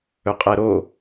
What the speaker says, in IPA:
ɵqʼɛɾo

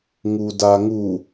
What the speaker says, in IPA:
ŋudaŋu

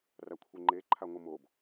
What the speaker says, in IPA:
rakʷʰeŋ͡ǃeǃʰa ŋʷɨmob

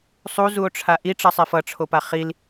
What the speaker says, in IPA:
sˤuzuo̯ʈ͡ʂʰa ʔiʈ͡ʂʌsˤef ʌʈ͡ʂʰopa χil

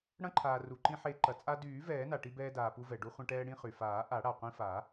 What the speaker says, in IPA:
ɽɐ̃˧ǃʰaː˩ ru˩ǃĩ˧ħe˨˩˦ ǃɐ˩ t͡sʼa˧dyː˨˩˦ vɛː˨˩˦na˩ʈi˧ bɛː˧daː˩pu˧ vɛ˩ ɖu˧χʷɐ̃˧ʈɛː˧ ɽĩ˧χy˩faː˨˩˦ ʔa˨˩˦ɽa˩qʷĩ˧fa˨˩˦

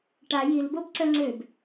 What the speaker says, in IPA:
ʈa jilbob ǀœŋ͡ǀøb

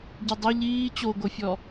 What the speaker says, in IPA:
ɟidˤɛ ʎiː t͡ɕoɡofʲɔ

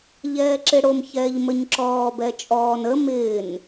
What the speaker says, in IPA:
ʎɛːǁɪɽom çɛːʎməɲǁɔːb ɛt͡ʃʼɔːn ə mɪːn

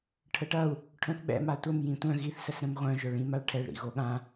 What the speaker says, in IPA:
ʈʰəʈɐu̯ | ʈʰœ̃θɓɛ̰ matʷəm jĩtʷœ̃ ɣiθ səsɾə̃mʁʷœ̃ ʒœɭĩm aɭʈʰɛɭ ɾḭɣoɠã

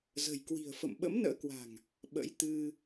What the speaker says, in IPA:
zə̤˨˩jkwi̤˨˩ə̯ fə̰˧˨mɓə̰˧˥mnə̰ː˧˥kwa̤˨˩ŋ | ɓə̰˧˥jt̪ɨ˧

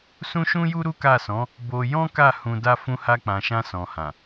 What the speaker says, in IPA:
sũ˦ʃũ˦ju˦ ɾu˦ka˦˨sɔ̃˨˦ | bo˧ jɔ̃˦ka˦˨ hũ˧da˦ fũ˧ha˧k͡pã˨ʃã˧ sɔ̃˨hã˨

